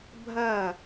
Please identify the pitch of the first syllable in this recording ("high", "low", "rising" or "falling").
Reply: falling